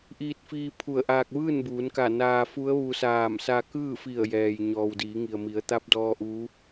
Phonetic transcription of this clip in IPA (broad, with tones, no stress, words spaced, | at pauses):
ʔiː˧t̚fiː˧ pʰu˧˩ə̯ʔaː˧k̚ ʋɯː˥˨nbuː˩˧nka˧˩ naː˧fu˧˥ə̯ ʋu˧saː˧˩m sa˧kɯː˥˨fi˧˩ə̯ jɛː˩j ɲɔː˩wdiː˩˧ŋi˩ə̯mi˩˧ə̯ t̪a˧˥p̚dɔː˧ ʔuː˧˥